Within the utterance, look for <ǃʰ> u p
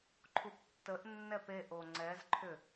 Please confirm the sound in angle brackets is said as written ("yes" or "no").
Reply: yes